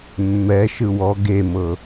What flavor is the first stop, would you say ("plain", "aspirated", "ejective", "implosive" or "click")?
plain